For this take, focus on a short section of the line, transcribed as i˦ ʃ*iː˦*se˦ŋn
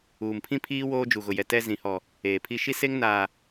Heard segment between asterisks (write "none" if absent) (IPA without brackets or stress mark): i˦